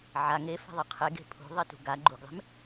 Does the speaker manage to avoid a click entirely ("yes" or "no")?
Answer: no